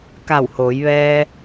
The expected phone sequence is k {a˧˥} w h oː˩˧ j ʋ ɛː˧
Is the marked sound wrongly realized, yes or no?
yes